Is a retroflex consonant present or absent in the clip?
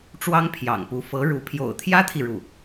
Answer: present